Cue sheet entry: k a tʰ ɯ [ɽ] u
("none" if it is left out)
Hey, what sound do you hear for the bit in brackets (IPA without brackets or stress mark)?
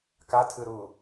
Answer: ɾ